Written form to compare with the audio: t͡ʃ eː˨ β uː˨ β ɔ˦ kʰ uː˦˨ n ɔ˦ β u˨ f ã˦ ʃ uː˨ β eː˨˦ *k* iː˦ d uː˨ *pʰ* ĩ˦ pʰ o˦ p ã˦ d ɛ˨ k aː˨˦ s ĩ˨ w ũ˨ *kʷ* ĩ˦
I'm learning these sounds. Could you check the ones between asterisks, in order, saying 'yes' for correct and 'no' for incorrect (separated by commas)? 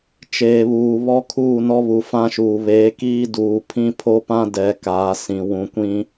yes, yes, yes